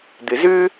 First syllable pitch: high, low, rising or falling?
low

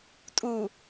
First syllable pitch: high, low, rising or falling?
low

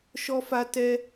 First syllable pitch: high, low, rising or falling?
high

